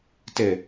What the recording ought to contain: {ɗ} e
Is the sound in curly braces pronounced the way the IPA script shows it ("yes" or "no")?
no